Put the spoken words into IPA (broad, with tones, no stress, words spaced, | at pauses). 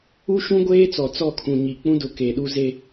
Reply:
u˦ ʃũ˦ɡʷeː˦t͡sɔ˨ t͡sɔ˦˨kʰũ˨ɲi˨k͡pũ˦ dʊ˨ke˨ɗu˦ ze˦